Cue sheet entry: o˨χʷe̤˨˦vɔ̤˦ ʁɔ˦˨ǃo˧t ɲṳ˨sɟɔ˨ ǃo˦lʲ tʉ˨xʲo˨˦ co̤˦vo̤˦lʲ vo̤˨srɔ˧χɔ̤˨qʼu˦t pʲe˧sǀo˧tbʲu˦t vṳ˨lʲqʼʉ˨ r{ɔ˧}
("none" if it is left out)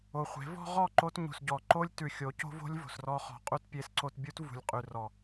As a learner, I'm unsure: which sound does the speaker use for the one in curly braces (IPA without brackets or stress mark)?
ɔ˨